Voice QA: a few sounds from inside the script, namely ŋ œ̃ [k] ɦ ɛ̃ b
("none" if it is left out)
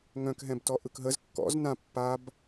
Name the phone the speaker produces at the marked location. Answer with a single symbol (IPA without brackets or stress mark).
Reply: k